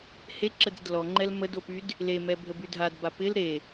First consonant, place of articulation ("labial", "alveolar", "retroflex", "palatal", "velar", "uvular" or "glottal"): glottal